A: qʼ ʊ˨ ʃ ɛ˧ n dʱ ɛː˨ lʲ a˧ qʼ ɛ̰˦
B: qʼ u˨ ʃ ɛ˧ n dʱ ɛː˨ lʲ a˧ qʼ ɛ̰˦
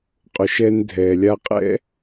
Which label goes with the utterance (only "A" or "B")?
A